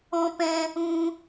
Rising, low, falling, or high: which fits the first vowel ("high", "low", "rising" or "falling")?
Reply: high